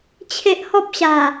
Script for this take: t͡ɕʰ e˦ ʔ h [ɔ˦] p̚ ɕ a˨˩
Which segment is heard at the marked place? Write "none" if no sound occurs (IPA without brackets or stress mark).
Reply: ɔ˦